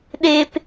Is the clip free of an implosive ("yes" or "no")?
no